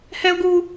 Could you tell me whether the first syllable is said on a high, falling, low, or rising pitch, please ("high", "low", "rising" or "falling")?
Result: high